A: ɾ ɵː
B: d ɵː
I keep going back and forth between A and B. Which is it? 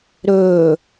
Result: A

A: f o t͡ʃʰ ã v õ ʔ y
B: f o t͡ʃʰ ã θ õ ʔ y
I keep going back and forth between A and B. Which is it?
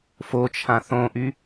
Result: B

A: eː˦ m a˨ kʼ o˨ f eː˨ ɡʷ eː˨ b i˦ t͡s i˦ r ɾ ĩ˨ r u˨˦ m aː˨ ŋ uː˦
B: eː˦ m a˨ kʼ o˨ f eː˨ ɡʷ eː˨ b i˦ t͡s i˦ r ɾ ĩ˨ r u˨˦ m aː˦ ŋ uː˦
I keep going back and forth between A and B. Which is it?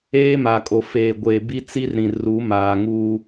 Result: A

